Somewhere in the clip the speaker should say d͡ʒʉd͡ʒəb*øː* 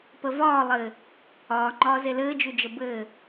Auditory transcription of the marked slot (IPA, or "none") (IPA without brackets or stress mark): ɘː